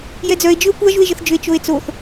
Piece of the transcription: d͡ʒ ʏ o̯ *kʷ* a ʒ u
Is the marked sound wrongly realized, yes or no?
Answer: no